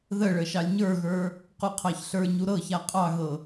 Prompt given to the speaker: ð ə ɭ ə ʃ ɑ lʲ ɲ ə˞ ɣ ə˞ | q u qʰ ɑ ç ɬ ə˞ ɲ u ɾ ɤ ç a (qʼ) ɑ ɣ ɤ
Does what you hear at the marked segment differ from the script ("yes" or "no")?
no